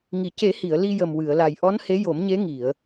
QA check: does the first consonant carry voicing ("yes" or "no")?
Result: yes